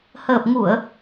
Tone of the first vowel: low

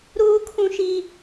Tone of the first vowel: high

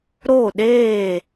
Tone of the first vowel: falling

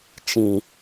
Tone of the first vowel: low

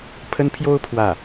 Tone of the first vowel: high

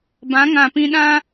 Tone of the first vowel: rising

